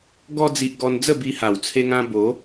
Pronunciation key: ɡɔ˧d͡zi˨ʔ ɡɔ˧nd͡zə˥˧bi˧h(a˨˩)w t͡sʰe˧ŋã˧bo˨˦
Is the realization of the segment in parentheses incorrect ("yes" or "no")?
no